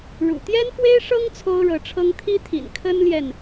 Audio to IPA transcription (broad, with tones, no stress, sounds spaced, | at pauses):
ɻ ṵ˨˩ t̪ j ɛ˥ n f w e˥ ɪ̯ ʂ ɤ˥ ŋ t͡sʰ o˥ ʊ̯ ɻ ɤ˧˥ ʈ͡ʂʰ ɤ˥ ŋ t̪ʰ i˥ t̪ʰ ḭ˨˩ n kʰ ə˥ n l j ɛ˨ n